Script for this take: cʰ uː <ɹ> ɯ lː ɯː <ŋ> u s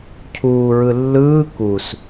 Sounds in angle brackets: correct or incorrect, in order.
correct, incorrect: k

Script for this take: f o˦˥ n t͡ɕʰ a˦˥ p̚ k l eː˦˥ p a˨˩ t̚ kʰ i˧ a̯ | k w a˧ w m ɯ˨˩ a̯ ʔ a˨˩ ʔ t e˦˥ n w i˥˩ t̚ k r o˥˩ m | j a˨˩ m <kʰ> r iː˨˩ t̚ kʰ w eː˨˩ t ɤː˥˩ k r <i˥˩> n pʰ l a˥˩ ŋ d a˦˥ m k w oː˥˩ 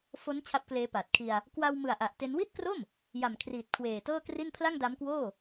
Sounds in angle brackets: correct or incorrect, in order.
correct, correct

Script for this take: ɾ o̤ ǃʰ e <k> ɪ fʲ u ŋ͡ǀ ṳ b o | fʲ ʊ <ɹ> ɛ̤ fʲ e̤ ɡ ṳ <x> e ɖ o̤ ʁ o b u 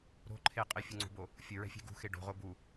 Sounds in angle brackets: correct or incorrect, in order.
incorrect: qʼ, correct, correct

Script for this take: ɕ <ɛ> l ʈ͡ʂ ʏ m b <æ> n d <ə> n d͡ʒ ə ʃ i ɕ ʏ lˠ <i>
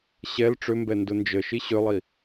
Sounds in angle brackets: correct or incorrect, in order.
correct, incorrect: ɛ, incorrect: ʊ, correct

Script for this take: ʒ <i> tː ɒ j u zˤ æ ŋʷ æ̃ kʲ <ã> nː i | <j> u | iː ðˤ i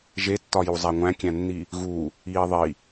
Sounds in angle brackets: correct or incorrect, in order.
incorrect: e, incorrect: æ̃, incorrect: ɣ

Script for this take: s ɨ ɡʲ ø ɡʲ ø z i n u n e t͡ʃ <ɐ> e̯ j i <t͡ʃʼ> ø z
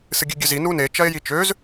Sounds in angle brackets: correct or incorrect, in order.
correct, incorrect: t͡ʃ

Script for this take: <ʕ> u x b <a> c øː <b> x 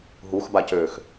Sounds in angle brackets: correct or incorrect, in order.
incorrect: ɦ, correct, incorrect: none

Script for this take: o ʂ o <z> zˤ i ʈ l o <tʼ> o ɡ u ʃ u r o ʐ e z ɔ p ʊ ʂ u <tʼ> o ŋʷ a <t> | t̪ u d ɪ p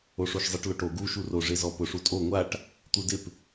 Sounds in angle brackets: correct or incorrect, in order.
incorrect: ʃ, incorrect: ʈ, correct, incorrect: ʈ

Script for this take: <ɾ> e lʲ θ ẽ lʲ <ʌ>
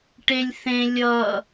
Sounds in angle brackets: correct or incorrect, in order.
incorrect: ʈ, correct

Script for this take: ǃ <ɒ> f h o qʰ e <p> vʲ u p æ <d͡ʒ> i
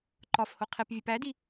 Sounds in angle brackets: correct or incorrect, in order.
correct, correct, incorrect: d

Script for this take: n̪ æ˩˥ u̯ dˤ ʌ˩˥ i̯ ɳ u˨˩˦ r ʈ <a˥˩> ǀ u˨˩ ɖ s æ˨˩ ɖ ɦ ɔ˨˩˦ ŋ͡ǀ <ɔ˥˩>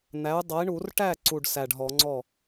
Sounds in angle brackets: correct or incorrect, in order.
incorrect: æ˥˩, correct

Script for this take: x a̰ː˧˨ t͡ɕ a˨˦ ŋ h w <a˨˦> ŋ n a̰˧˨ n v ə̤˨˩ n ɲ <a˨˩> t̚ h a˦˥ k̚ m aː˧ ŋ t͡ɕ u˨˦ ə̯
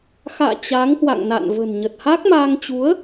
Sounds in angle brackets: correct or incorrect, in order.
incorrect: a̰˧˨, incorrect: ə˨˩

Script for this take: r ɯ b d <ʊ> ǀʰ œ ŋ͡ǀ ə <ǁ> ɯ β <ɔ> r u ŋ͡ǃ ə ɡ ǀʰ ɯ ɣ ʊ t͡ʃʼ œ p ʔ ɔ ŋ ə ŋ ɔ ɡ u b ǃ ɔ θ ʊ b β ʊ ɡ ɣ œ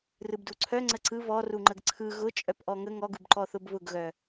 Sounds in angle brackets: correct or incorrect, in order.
incorrect: u, incorrect: ǀ, correct

